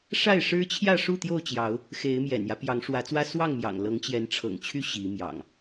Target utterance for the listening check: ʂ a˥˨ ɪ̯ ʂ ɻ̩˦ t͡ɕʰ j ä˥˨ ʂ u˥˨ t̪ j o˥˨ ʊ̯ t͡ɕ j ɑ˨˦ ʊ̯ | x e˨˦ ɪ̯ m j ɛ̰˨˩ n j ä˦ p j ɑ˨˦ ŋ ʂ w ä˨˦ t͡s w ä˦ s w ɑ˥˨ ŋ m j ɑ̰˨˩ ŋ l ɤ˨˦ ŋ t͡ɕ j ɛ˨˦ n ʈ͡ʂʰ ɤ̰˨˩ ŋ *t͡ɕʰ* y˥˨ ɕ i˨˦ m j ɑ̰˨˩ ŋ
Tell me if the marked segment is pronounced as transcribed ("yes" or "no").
yes